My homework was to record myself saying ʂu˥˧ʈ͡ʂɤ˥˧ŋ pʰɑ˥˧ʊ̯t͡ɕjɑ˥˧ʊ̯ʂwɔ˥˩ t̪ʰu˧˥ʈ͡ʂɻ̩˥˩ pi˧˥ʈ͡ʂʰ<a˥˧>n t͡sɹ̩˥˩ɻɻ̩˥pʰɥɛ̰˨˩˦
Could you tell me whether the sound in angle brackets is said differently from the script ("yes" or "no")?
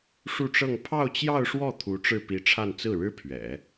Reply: no